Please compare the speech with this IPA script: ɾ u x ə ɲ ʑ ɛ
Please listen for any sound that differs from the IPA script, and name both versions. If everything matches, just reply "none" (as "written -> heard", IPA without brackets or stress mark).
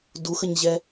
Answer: ɾ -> d